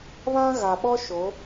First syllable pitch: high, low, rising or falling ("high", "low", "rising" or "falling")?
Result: high